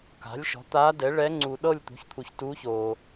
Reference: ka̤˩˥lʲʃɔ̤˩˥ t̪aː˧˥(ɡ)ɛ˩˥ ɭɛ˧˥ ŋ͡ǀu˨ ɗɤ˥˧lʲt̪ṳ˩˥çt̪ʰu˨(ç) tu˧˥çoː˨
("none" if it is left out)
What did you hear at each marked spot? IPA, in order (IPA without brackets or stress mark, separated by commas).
d, ç